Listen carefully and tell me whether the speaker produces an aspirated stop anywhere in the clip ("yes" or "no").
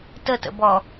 no